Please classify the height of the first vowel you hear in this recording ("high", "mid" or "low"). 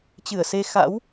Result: high